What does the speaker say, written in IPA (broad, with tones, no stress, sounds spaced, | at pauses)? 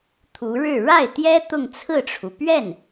t̪ʰ u˧˥ ɻ ɻ̩˥˧ ɻ a˥˩ ɪ̯ t̪ j ɛ˥ t̪ ʊ˥˧ ŋ t͡sʰ ɹ̩˥˩ ʈ͡ʂʰ u˩ p ɥ ɛ˥˩ n